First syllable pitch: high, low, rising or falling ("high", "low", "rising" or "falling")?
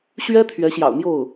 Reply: high